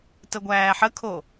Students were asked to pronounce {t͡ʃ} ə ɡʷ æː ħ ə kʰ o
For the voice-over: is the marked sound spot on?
no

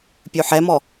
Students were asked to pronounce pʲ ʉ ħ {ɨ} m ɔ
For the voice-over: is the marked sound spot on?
no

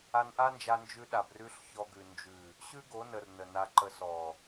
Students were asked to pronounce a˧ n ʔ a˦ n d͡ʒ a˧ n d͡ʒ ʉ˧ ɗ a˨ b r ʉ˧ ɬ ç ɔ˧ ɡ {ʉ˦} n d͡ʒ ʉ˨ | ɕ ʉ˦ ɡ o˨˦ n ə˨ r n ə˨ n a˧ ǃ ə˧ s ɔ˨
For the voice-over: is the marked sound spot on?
no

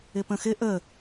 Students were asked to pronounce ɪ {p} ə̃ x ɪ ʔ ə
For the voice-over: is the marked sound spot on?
yes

